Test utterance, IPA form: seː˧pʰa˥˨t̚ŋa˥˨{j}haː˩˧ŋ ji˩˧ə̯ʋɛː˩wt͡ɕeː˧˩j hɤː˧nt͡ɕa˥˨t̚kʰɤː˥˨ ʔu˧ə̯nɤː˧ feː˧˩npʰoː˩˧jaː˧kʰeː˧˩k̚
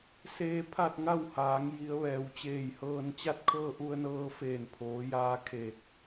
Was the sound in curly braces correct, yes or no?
no